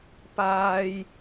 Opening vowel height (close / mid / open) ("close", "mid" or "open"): open